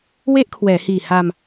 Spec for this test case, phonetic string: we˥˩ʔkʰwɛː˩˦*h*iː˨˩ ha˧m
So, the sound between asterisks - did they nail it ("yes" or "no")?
yes